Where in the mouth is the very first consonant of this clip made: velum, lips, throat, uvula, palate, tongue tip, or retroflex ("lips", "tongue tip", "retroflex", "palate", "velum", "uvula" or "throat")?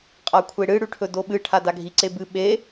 uvula